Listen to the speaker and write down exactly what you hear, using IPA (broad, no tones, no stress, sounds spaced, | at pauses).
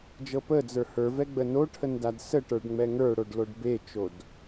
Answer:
d͡ʒ ɤ p ə d͡z ə˞ h ə˞ v ɛ ɡ͡b ə n o ʈʰ ə n d a d s ə ʈ ə˞ ɖ ŋ͡m ɛ ŋ ə˞ ɽ o ɖ l o ɖ b e t͡ʃ o d